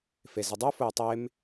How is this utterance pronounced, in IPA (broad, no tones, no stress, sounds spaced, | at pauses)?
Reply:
f e z ɪ dˤ u f ʊ j tˤ e m